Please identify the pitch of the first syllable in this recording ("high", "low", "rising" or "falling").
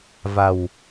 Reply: low